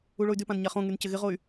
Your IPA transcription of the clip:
uɭoy̯dypãn ɲaχõŋyn cɪɣɪʁoy̯

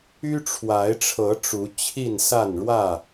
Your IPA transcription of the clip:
y˦ʈ͡ʂʰwa˨˦ɪ̯ʈ͡ʂʰɤ˨˦ ʈ͡ʂu˨˦t͡ɕʰi˥˨n sa˥˨n ɻwä˥˨

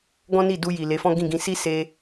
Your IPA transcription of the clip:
ɡɔ̃˦ni˦˨du˧ji˨ le˨˦fɔ̃˦ɡĩ˦˨ɡĩ˧ si˦ se˧

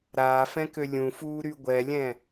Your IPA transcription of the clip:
ɾaːfɛ̃kø lʲũfuːɾy ɡʷɛlʲɛ̃

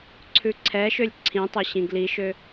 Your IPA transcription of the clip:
ǀʰʉǀʰɛʃølʲ ǀʰĩtˤe ɕĩɡliʃø

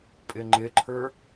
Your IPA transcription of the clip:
pʼɪŋ͡ǃɪǃʰə˞

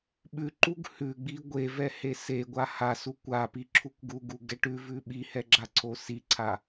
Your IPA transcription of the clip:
ɓʉǃuɡ hʉɡ͡bi ɡʷevɛhe seɡʷa hasu kʷapiǁʰukʷ ɡuɡuɡɛ ʈʉvʉ ɓihɛɡ͡ǁaǀʰo siǀʰa

